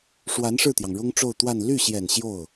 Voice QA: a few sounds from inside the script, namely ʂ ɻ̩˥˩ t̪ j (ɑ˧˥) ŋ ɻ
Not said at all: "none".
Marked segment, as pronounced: ɑ˩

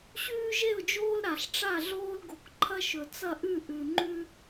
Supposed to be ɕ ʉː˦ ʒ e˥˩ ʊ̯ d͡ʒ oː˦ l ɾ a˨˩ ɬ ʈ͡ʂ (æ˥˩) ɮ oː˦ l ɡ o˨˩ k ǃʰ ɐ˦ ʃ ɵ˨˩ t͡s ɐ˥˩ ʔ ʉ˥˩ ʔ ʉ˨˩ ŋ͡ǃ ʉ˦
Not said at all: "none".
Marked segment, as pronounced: a˥˩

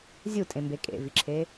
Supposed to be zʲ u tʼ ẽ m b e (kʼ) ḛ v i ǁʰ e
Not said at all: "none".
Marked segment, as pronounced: kʼ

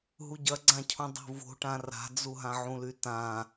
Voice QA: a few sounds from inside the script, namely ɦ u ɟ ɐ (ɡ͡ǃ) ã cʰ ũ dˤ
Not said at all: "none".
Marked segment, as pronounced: ɡ͡ǀ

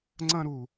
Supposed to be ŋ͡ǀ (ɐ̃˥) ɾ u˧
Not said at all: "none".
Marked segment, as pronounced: ɐ̃˥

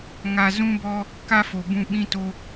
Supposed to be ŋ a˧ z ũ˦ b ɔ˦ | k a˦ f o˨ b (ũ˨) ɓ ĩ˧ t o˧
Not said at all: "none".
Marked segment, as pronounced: ũ˧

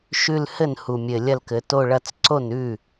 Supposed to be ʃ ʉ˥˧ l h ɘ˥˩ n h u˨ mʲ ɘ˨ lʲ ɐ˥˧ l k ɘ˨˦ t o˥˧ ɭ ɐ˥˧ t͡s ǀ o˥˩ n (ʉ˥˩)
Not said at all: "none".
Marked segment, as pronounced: ʉ˥˩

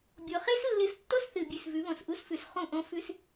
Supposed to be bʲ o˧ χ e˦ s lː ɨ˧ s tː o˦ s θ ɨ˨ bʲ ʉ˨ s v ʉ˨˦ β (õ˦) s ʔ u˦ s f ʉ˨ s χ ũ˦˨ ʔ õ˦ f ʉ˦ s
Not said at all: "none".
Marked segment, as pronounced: õ˨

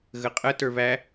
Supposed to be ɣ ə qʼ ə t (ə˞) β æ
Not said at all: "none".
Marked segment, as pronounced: ə˞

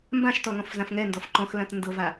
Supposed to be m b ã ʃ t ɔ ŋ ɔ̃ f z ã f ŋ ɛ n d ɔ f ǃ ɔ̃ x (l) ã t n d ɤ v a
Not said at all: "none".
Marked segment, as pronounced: l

